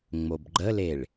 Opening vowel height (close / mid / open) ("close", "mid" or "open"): mid